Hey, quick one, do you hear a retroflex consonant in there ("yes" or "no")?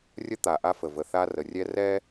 no